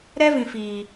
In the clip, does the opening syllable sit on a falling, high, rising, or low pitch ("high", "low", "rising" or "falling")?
high